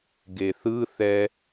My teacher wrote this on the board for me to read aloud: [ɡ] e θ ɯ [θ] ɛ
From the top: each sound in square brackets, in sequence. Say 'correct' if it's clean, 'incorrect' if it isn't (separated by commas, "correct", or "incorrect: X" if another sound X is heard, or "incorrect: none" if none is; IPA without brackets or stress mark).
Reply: correct, correct